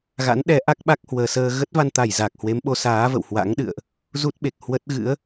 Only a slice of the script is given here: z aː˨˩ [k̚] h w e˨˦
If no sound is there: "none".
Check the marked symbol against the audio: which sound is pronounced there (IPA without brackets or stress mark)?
k̚